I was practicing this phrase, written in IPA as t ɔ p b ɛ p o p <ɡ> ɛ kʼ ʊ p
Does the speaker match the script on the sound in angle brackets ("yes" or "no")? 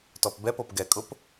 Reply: yes